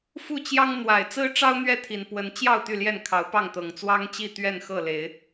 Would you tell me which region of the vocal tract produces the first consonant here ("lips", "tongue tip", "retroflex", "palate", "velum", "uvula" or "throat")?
lips